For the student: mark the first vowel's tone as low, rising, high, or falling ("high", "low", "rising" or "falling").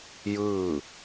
falling